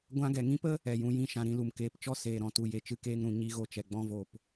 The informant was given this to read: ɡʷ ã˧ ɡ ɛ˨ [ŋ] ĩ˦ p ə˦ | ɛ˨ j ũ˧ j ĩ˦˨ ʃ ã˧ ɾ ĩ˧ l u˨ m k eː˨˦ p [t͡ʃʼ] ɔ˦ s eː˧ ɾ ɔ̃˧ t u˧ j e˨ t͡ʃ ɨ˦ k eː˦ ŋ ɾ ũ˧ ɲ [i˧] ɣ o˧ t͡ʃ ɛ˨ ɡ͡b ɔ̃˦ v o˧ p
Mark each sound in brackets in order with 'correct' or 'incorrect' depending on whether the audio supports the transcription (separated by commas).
correct, incorrect, correct